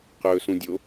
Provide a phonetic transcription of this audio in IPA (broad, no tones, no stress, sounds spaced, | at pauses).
q ɵː s ũ dʲ o